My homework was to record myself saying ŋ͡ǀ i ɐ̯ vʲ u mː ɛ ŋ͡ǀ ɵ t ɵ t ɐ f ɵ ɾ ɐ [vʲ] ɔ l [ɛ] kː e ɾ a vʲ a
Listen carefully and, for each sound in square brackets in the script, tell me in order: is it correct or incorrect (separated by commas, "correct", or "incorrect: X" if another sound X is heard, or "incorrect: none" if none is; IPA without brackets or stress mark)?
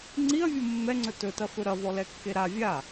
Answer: incorrect: v, correct